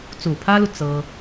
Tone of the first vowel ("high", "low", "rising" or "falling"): low